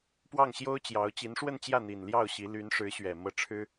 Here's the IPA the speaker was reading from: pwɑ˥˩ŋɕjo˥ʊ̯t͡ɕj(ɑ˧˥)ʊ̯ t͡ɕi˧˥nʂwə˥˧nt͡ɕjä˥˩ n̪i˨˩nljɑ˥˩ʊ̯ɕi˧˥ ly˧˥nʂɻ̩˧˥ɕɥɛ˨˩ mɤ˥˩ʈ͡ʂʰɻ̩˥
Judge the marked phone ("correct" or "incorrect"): correct